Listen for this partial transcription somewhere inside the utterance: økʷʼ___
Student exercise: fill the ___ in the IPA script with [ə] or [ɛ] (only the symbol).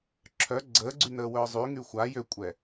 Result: ɛ